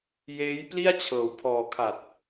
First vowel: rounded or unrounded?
unrounded